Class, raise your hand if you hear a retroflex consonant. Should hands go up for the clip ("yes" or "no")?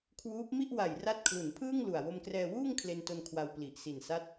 no